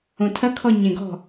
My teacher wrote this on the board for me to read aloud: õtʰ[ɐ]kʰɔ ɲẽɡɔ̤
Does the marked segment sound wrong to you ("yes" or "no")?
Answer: no